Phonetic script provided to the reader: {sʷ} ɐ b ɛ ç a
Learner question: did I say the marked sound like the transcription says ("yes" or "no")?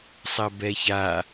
no